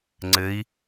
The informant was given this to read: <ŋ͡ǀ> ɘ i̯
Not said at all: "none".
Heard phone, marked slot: ŋ͡ǀ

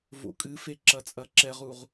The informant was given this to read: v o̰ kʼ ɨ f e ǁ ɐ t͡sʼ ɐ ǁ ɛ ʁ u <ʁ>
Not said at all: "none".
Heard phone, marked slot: ʁ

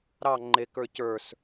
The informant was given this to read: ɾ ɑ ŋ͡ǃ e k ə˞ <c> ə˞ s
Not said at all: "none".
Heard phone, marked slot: c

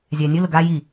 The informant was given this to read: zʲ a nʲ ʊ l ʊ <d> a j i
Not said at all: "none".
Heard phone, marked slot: ɡ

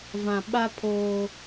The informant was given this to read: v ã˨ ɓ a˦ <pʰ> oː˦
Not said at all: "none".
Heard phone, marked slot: pʰ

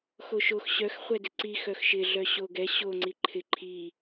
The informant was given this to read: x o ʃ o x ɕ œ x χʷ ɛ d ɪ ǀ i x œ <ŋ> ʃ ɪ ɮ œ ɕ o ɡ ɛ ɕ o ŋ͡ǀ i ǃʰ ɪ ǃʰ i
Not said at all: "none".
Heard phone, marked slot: x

